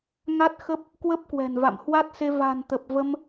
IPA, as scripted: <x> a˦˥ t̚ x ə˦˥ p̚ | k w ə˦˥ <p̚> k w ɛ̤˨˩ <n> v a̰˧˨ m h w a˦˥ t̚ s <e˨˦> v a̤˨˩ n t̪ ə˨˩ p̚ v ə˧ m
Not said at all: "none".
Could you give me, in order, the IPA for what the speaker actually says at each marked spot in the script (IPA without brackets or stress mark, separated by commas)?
ŋ, p̚, n, e˧